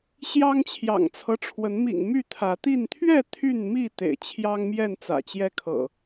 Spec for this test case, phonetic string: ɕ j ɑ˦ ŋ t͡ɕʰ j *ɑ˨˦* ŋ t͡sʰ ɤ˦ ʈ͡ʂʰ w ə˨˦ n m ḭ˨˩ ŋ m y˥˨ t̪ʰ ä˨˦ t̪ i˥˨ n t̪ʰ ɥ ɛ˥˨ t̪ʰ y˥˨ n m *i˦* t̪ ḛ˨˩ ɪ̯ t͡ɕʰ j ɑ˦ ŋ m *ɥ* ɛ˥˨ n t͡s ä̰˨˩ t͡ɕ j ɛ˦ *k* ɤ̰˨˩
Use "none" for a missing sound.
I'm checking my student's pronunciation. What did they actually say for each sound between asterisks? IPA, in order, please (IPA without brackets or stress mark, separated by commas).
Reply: ɑ̰˨˩, i˥˨, j, kʰ